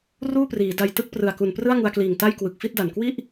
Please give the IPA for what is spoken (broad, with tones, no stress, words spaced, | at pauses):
ruː˥˩priː˩˦da˧j tɯ˦˥k̚prɯ˨˩a̯ ku˨˩nprɯ˥˩a̯ŋu˧a̯kliː˨˩ŋ ta˥˩jkwɯ˨˩k̚fi˥˩t̚da˨˩n kwi˥˩ʔ